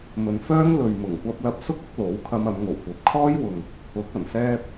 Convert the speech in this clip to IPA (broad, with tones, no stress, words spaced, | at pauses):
mɵ˨nfœː˥ŋ lɵ˨ɥ mʊ˨˩ŋkʷɐ˧p̚ lɐ˧p̚sʊ˥k̚ʊ˨˥k̚ lo˨˥w kʰɐ˧mɐ˨˧mŋo˨˩w kʷɐ˨p̚kʰɔː˥jwʊ˨ŋ | ʊ˨˥k̚ ɐ˨˩nsɛː˧p̚